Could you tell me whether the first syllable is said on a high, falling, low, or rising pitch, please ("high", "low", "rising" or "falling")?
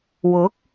rising